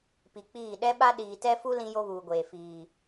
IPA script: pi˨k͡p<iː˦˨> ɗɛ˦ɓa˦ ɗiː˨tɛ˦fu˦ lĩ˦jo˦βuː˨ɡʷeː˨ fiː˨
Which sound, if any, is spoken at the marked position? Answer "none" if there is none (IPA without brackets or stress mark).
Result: iː˦˨